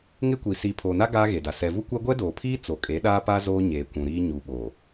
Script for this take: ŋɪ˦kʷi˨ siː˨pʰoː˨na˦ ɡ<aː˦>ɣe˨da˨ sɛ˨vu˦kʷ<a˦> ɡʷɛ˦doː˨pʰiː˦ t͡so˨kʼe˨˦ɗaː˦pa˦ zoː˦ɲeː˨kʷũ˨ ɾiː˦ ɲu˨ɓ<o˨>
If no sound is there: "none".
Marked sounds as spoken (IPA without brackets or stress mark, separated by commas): aː˦, a˦, oː˨